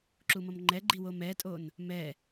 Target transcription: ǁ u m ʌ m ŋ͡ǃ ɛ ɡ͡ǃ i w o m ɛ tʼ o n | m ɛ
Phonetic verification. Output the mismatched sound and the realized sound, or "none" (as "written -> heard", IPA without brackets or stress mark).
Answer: none